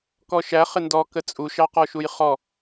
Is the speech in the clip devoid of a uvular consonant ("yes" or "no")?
no